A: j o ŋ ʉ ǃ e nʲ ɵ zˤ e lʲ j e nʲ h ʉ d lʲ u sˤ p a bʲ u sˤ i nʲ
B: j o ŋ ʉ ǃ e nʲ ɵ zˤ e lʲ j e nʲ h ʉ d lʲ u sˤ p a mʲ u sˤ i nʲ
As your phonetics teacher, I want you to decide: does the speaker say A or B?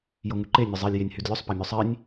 B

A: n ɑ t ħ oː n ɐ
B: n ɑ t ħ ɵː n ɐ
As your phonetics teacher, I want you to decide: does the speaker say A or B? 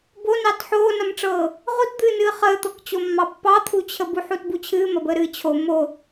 A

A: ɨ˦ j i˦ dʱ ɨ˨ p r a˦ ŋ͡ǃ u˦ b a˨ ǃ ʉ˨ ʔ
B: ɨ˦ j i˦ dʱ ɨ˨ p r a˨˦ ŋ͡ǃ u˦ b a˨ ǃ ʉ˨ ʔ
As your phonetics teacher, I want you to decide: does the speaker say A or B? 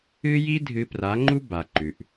B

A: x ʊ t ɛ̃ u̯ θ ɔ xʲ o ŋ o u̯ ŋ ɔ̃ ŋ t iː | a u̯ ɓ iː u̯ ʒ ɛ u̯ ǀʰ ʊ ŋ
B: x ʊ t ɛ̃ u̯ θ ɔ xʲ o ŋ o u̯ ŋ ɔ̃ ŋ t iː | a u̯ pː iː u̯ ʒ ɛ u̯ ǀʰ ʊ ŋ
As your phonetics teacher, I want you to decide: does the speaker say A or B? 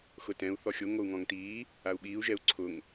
A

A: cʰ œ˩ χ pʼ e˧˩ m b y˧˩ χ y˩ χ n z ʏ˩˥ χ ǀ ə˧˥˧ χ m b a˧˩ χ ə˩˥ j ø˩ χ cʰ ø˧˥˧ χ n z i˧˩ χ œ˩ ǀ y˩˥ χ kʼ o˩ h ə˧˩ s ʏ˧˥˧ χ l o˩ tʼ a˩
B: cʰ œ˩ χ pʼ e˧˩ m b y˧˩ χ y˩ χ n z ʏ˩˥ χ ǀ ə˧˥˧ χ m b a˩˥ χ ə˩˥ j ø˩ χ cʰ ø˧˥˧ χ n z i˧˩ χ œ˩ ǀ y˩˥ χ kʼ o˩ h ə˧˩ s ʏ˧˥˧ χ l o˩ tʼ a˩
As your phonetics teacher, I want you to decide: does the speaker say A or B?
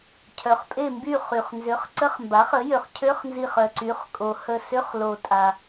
B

